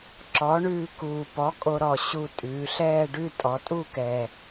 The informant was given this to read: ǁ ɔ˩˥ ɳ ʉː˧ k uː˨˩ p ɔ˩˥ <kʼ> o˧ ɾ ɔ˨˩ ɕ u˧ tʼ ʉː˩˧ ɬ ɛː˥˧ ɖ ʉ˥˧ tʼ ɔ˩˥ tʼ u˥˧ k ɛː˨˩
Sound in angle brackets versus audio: correct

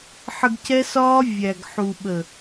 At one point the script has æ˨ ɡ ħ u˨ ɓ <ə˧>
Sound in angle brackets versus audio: incorrect: ə˨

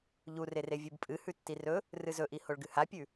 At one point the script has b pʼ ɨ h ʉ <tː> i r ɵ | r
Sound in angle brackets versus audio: correct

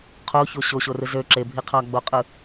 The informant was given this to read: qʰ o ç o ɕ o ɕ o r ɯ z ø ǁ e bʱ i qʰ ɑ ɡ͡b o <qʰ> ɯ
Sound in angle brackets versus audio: incorrect: qʼ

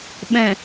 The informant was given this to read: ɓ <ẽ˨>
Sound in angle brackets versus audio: incorrect: ɛ̃˨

